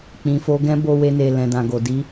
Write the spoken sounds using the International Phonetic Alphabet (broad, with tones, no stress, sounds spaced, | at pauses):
k͡p ĩ˨ f o˧ ɡ ɛ̃˦ b o˧ w e˧ n e˨ l ɛ̃˨ d ã˨ ɡ o˨ d i˧